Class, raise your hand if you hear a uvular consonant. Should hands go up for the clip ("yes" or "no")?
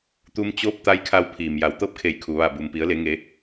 no